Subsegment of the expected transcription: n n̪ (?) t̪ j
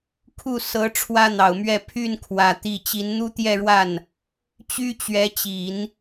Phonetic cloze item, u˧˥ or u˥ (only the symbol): u˥